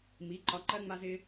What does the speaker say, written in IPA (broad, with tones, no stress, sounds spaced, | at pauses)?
m i˩˥ ǃ ɒ˧ ǃ ɜ˥ ŋ͡m a˥ z ɪ˥